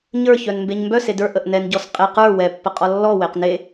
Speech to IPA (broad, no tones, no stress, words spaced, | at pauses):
ɲə˞çœn mbeɲmbœse də˞ʔəʔ nɛnɟɔs qʼeq ə˞ wɛpːə qʼɔlːɔweq ne